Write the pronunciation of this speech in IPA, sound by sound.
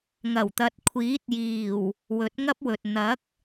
ŋɐ˨˩wt̪ɐ˨t̚kʷʰiː˨˥t̚ jiː˨˩w | wɵ˨˥t̚ŋɐ˥p̚wɵ˨t̚ n̪ɐ˨˥k̚

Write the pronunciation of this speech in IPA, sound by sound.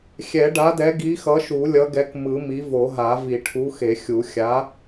xʲɛ˨˩˦ɖa˨˥dɛ˨˥ ɡi˨˥xʌ˨˥ʃu˨˩˦ lʲʌ˨˥ɡɛ˨˥kmɯ˨˩˦mi˨˥ vo˨˩˦ɦa˨˩˦ vi˨˩˦ʈʰu˨˥xe˨˩˦xʲu˨˩˦ xʲa˨˥

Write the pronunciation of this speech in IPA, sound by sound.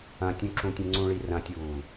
ɐ̃tʲũǁũtʲẽ ŋ͡ǀũɭirɐ̃tʲuː

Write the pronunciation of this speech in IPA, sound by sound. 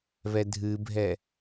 βɛdʱɨbʱɛ

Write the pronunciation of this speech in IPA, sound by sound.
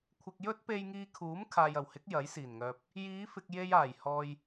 kʷʰɪ˨k̚ jɵ˥t̚pe˧jŋiː˧kʰuː˨˥m kʰaː˨jɐ˨˩whɪ˨˥k̚ jɐ˨˥jsiː˨˩nŋœː˨p̚ | jiː˨˧fɪ˨k̚ je˧jaː˨˩j hɔː˨j

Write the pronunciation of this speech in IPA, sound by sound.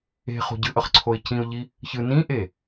e̤ χo̤ɟɯʔʌχ ǀʰoɪ̯cĩʊ̯ʎi | çɯ nĩʔe

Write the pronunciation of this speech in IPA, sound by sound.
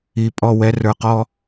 i˨pʼɔ˦˨wɛ˧ rə˞˨qɔ˧

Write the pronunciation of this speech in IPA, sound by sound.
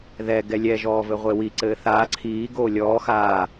ðɛ ɡɛlʲɛ ʒɔːvɘʁʷewi ǀɘːθaː ǀʰiː ɡoːlʲɔː xaː

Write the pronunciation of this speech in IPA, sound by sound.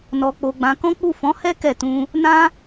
nɔ˧k͡po˧ɡ͡bã˧kɔ̃˦ k͡pu˦˨fɔ̃˨˦hɛ˦ kɛ˦˨tũ˧ | nã˦

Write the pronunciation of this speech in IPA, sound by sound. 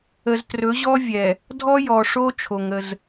ə˨ztrɵ˨˦ʑɔ˦ vʲɛ˨ | dʱɔ˦jɔ˨ʂo˦t͡ʃʰo˨ŋ ə˦z

